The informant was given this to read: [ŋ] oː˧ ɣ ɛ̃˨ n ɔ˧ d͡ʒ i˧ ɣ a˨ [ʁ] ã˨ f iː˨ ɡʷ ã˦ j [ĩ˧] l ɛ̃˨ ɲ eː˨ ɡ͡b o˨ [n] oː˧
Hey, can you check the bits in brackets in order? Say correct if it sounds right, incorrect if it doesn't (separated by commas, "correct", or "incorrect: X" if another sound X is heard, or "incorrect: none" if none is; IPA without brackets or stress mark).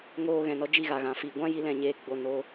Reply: correct, incorrect: ɣ, incorrect: i˧, correct